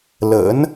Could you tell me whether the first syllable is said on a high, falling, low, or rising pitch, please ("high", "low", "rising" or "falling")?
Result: rising